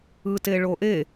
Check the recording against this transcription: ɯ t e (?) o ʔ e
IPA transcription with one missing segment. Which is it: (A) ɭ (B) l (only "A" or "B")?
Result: A